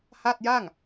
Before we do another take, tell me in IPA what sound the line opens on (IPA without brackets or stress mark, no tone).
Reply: h